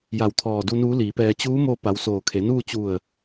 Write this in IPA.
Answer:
ja˧˩wt̪ʰɔː˧˩du˧ nuː˧˥liː˩˧pɛː˧ t͡ɕuː˧˥mo˧ pa˩˧wsoː˩ kʰe˩˧nuː˥˨ t͡ɕu˧˩ə̯

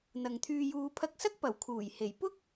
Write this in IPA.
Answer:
n̪ɐ˨ŋt̪ʰyː˧juː˧ pʰɐ˧k̚sɐ˥k̚pɐ˨˩w kʰuː˨˩jhe˨˩j pʊ˥k̚

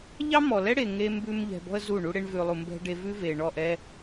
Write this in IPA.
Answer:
ʎɑ˦mɔ˨lɛ˦ɽe˨ ŋe˦ mbʉ˧m ʎɛ̤˨bɔ̤˧ə̯ zu˦˨ɳu˦ɽe˦ɳvʉ˧ lˠu˨mbɛ̤˧ ɖe˧vʉ˦ve˨ ɳɔ˦˨ʔɛ˦

